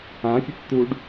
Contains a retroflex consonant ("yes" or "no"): yes